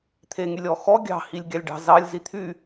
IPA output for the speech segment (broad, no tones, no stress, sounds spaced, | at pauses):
t̪ʰ e ŋ y lʲ ɔ x ɔ ɡʲ ɑ̤ h i lʲ ɡʲ ɑ lʲ ɖ ɑ̤ z ɑ lʲ z i t̪ʰ y